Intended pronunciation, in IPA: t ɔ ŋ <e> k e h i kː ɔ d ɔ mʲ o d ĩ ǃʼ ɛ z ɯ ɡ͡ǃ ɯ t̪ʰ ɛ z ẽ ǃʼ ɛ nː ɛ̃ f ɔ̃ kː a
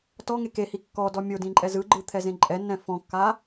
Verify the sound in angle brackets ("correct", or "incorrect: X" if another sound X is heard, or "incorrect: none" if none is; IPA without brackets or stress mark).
correct